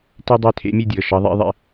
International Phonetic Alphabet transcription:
te˥dˤœ˥˨ tʰḛ˧˥mʲe˥˨dʲɤ˩˧˩ ʃɑ˧˥ðˤḭ˧˥ðˤḛ˧˥

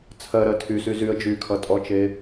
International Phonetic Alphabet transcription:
t͡sʰɜɾɜ tʰysy zyə̯ d͡ʒykʰʌtʼɔt͡ʃe

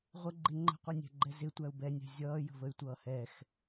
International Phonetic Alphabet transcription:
ʁʷəɡ͡ǃɪ ŋ͡ǃə̤qʷɛnʲæ̤ɡ͡ǃɛ zɪtʷæu̯ bɛnʲæ̤ zʲʌːjə̤vəy̯tʷʌː hɛx

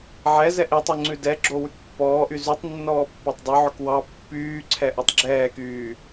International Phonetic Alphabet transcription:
ʕɛzɛʔ etˤy ŋ͡ǀʉdɛɡ͡ǁo wʉkpːɔːʔy zytˤ nːɔːpːɑtˤdˤɵʕɵk wɑ pːyːǀʰɛ ʔɔtˤɡ͡ǁɛːkyː

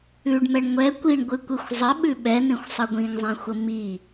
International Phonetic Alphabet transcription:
ʉɖmɛɳ ŋʷɛ kʷiɳɡʷɨkʷexʷ zˤəɓʉ ɓɛn̪ẽxʷsˤə ɡʷĩŋzˤẽxʷə mi

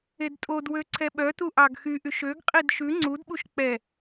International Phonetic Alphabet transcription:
edtʼodwø ǀʰɛɓœtu ʔɑɡxyʔyʃ øɡqʼid ʃʉ ŋ͡ǀudɓuʃ k͡pɛ

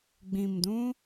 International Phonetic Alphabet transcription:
ɡ͡bĩ˨mdũ˧

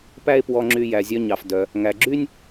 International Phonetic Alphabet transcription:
pæ˥e̯pwɔ˧ŋ͡ǁy˧ jæ˩zʲœ˧ɲɑ˩f dœ˩ | ŋæ˩ɡ͡ǁy˥nʲ

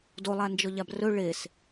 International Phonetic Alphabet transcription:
dolˠa nd͡ʒɔʎabrɵ ɭes

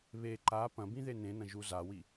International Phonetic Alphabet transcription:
βe ǃa pɐ̃bĩ ðenẽnɐ̃ ʒuzawi

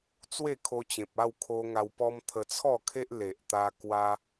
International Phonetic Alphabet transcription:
t͡swe˥˧kʰo˧t͡ɕẽ˨p̚ a˥˧wkʰo˧ ŋa˧wpɔ˦m t̪ʰə˧t͡sʰɔ˥˧kʰe˦ʔ le˨ʔt̪a˧ kwa˦

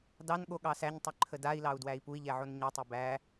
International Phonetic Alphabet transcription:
dɑnɠo ɠɑsæɲtˤø ǃʰədai̯lɑu̯ dwæi̯pui̯ʎɛ ʕonɲɛtˤe bæ

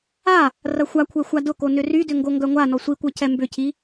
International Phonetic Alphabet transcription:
a | rɐxʷakʷʰɛ xʷadʊko nʏrydʏ ŋɡoŋɡœŋʷanɔ sʷikʷœ cʰɛmbʏcʰi

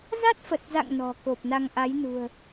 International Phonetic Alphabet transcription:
za˦˥t̚fə˨˩t̚za̰˧˨ŋ nɔ̤˨˩ ko˨˩p̚na˧ŋʔa˨˦jnṳ˨˩ə̯

